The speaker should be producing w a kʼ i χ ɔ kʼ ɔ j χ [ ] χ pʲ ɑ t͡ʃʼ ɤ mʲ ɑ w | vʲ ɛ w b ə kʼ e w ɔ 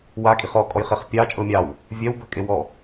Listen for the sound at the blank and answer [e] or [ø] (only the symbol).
e